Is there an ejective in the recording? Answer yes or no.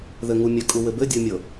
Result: yes